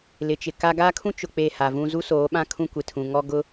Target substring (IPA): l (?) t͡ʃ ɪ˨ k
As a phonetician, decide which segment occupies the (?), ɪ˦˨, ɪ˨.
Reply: ɪ˨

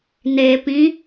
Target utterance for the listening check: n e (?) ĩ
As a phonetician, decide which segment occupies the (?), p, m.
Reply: p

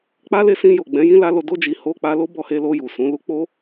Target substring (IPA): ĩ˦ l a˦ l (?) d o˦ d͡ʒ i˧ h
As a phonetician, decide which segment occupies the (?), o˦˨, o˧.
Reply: o˧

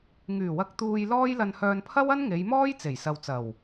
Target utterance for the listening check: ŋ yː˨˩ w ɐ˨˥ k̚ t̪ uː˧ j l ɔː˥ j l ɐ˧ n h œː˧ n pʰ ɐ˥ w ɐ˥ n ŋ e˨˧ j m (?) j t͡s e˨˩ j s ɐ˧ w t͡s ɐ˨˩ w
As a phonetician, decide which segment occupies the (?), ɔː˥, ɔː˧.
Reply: ɔː˥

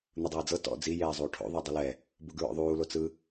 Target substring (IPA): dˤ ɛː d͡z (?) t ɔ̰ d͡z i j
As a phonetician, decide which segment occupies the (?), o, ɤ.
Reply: ɤ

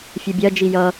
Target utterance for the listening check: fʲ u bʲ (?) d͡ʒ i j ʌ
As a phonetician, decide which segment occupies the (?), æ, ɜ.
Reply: ɜ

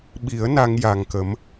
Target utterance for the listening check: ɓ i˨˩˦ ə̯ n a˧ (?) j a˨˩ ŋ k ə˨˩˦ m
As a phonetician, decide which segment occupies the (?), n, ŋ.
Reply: ŋ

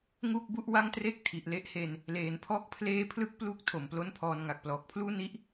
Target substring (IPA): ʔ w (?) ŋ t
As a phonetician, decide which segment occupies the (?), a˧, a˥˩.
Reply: a˥˩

